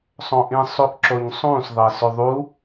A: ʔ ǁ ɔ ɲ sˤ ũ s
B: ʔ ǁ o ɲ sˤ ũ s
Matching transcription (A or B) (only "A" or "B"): B